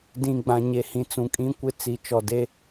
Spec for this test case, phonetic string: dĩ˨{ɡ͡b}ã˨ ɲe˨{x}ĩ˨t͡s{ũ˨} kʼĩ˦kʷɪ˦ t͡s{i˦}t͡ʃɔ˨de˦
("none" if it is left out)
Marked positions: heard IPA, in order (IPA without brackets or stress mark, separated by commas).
ɡ͡b, h, ũ˨, i˨